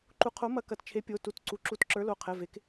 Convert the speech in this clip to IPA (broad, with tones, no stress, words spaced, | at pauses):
ǃu˨˥qʰo˨˥mɐ˨˥kɐ˩˧˩t t͡ʃʰe˨˥pʲo˩˧˩ tu˨˥t ǀu˩˧˩ǁu˨˥tǁə˞˨˥lo˩˧˩ qʰɛ˩˧˩ve˩˧˩k